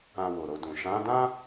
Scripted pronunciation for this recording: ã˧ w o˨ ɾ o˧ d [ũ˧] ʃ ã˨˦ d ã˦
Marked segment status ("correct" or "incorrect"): incorrect